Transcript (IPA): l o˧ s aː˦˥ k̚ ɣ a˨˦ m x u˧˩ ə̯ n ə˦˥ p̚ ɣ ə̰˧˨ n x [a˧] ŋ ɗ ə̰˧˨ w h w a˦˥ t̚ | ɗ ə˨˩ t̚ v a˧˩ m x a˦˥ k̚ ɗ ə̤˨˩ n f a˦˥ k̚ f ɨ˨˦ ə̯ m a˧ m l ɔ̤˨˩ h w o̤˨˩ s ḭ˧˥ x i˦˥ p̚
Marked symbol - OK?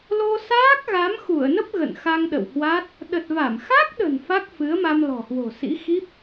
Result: yes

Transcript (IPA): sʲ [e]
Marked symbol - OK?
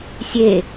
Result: yes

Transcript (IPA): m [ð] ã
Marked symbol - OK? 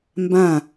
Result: no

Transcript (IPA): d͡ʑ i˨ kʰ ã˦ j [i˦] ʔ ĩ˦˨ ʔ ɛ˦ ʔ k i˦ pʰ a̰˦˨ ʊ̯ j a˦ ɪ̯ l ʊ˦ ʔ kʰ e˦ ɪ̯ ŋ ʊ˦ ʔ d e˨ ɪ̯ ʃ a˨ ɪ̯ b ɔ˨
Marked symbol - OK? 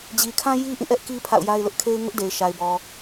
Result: yes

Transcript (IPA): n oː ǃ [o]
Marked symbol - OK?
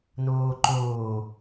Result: no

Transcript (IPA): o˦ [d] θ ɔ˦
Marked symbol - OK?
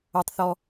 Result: no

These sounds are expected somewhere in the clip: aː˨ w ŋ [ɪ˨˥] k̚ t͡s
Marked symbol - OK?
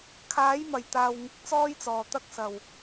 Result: yes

